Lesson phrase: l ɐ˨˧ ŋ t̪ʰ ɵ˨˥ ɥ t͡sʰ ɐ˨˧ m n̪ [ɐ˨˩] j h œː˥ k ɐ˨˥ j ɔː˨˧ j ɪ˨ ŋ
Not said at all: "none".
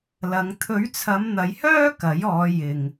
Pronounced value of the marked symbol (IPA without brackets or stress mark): ɐ˨˧